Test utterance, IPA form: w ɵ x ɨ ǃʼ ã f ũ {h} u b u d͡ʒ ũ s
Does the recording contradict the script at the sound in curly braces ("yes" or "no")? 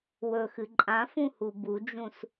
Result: no